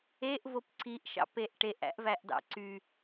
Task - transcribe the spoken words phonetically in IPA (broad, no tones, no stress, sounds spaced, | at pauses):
e ʔ v o p ǀ i ʔ ʃ ɑ̰ p e ʔ ʈ e ʔ æ̰ ʔ v æ ʔ d ɑ̰ ǀ y